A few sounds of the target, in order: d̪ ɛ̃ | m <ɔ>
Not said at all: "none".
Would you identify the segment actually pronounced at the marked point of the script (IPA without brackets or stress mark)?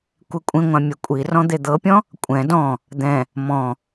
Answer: ɔ̃